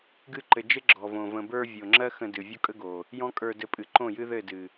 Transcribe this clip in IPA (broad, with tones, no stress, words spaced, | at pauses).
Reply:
ɡɨ˧ǃɘ˨d͡ʒɘ˦ ɡ͡ǁɔ˨võ˨ və̃˨bə˞˧ vʲo˨ŋ͡ǁɜ˦ xə̃˧dɨ˨ vʲo˦kʼə˦ɡo˨ | jɔ̃˦kʼə˞˧dɘ˧pʼɨ˨ ǃõ˦˨jɨ˦ðɘ˦˨dɨ˨